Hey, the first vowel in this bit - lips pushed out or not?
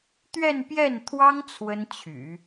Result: no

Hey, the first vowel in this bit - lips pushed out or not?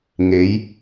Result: no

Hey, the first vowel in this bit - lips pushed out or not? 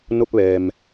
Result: yes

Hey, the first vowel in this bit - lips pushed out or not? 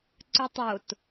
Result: yes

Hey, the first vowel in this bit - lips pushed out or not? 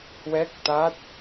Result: no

